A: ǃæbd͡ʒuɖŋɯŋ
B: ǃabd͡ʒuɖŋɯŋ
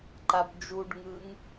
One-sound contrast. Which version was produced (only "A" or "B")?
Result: B